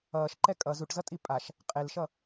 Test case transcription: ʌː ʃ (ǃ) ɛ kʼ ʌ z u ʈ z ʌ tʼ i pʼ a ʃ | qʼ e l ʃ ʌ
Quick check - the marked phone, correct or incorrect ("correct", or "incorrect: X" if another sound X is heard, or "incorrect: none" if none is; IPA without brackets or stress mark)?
correct